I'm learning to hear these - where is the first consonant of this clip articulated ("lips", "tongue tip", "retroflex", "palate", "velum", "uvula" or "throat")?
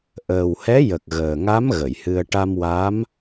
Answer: throat